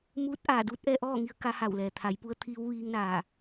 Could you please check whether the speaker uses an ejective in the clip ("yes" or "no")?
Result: no